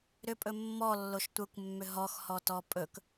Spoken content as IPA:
ɾ ʏ pʼ ɵ mː ɔ lː o ʃ tʷ ə kʷ mː ʏ ɦ ɔ x h ɔ t ɔ pʼ ɵ k

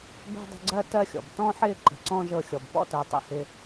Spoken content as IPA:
b ɛ̤˥ dˤ ə̤˦ ɡ͡ǀ ɜ˥ t ɜ˦ xʲ ɔ̰˩ b t ɔ̃˥ ħ ɪː˥ ǃ ə̤˨ ǀ ɔ̃˥ ʒ ɤ˦ xʲ ɔ˨ b p ɔ̰˦ t ɜ˨ tˤ ḭ˦ h ɪ˦

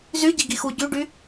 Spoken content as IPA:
z y ɟ i ɡ i x u ɟ y ɖ y

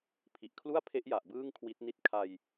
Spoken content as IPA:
pʰ i˨˩ ʔ kʰ l u˥˩ a̯ pʰ e˦˥ ʔ j a˨˩ ʔ b ɯː˥˩ ŋ kʰ w i˦˥ t̚ n i˥˩ t̚ kʰ a˧ j

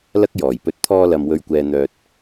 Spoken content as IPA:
l ɐ˥ k̚ j ɔː˨˩ j p ɵ˧ t̚ t̪ʰ ɔː˧ l ɐ˨ m w ɵ˨ ɥ kʷ ɛː˨ n̪ œː˨ t̚

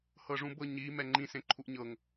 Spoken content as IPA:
h ɤ ʐ ũ b ɤ ɲ i m ɛ ŋ͡ǃ ĩ s ẽ ǃʰ u ʔ ɲ ɤ ŋ

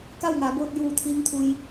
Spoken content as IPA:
k a˥˨ w ŋ aː˩˧ b oː˧ t̚ j uː˧˩ t̪ʰ iː˧˥ ŋ t̪ʰ u˧ j

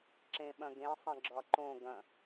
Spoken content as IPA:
ǁ ẽ ɓ ɐ̃ ɡ ẽ sˤ ɐ̃ ɡ͡ǁ ɒ ǃ õ ɡ ɐ̃

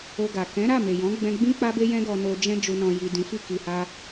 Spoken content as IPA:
o˧ ɡ a˨ k ɛ̃˨˦ ɾ a˦˨ m e˨ j ɔ̃˨˦ ɡ͡b ɛ̃˧ ɡ͡b ĩ˦ k͡p a˦ b e˦ j ɛ̃˦ ɡ ɔ˧ n o˧ d͡ʒ ɛ̃˦ d͡ʒ u˧ n ɔ̃˧ j i˨ d ĩ˨˦ f i˦ k i˧ h a˦

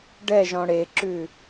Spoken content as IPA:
ɖ ɛ ʒ ɔ̃ ɽ e ǁ ʉ

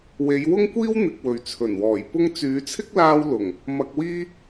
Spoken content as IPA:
w e˨˧ j w ʊ˥ ŋ kʷ iː˥ w n̪ ɪ˨ k̚ w ɵ˨ ɥ t͡sʰ ɵ˨˩ n w ɔː˨˩ j p ʊ˥ ŋ t͡s yː˨˧ t͡sʰ ɪ˥ k̚ l aː˧ w l ʊ˨˩ ŋ | m ɐ˧ k̚ w iː˥

